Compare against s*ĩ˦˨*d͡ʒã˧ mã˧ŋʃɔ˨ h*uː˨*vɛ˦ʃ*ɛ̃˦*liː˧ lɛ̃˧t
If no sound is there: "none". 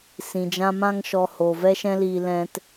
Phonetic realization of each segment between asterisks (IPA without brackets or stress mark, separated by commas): ĩ˨, oː˨, ɛ̃˦